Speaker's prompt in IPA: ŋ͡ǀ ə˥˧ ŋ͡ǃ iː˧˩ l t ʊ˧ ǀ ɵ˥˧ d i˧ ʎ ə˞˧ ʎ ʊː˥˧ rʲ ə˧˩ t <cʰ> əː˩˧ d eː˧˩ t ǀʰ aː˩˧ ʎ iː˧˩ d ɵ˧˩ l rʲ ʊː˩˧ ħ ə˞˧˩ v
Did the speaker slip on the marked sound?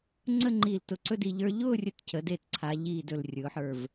no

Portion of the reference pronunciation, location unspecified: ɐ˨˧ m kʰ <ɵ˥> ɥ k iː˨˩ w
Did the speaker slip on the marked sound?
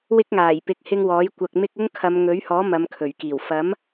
yes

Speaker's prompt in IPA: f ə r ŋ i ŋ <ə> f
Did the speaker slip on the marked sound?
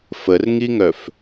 yes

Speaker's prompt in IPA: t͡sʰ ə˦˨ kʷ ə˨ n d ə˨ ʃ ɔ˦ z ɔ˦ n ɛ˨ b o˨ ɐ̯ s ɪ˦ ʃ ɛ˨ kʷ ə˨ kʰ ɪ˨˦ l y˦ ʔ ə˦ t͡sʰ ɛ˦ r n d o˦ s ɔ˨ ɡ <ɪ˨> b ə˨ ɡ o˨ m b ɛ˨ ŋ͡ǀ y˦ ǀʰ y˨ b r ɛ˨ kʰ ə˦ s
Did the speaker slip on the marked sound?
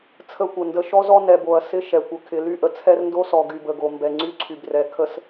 yes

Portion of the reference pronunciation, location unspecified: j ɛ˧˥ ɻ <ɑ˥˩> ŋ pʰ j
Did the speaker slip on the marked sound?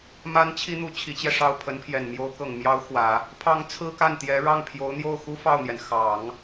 no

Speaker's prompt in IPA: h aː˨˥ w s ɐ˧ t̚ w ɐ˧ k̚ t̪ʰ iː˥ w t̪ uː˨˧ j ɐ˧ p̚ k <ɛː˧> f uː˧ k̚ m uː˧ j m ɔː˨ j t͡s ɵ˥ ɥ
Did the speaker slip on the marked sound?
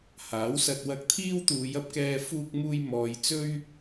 no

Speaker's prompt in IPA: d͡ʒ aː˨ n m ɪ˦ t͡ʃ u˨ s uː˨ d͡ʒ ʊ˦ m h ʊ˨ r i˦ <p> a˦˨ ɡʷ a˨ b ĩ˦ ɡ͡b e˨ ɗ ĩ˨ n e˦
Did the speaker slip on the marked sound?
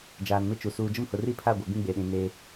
yes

